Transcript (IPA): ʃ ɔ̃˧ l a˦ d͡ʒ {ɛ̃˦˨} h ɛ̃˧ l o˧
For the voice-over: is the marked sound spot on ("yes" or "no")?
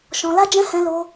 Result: no